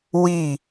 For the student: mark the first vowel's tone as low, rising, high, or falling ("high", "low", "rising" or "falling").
falling